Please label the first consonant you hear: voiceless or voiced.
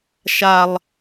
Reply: voiceless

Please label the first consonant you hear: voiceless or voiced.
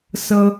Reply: voiceless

